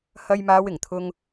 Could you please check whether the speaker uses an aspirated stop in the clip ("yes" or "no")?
yes